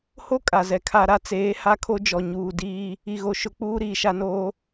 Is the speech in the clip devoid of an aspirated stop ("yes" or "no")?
no